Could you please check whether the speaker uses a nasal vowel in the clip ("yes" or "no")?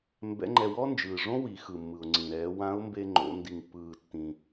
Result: yes